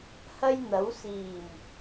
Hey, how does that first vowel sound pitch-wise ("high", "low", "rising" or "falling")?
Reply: high